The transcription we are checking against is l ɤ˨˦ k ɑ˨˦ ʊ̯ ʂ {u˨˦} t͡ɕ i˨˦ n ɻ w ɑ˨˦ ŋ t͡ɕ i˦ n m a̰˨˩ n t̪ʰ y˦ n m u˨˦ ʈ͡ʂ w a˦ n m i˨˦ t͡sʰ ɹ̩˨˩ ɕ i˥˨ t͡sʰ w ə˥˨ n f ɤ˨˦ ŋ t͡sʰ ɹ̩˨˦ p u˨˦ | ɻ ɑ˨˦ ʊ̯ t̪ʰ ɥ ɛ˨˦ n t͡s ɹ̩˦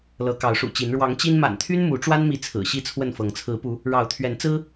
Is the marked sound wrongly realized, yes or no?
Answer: yes